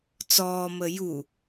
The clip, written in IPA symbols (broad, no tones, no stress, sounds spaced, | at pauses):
t͡s ɔː m ə j u